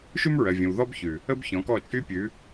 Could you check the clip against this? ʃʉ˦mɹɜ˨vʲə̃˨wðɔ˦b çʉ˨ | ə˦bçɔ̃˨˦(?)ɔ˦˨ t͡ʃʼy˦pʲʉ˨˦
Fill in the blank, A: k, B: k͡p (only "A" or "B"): A